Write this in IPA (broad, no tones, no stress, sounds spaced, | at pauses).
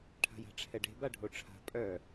ʈʰ a̤ j a̤ ʈ͡ʂʰ ɛ ɖ e̤ b a ɖʱ o ʈ͡ʂʰ a̤ pʼ œ